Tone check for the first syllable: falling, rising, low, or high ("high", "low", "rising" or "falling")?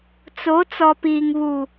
rising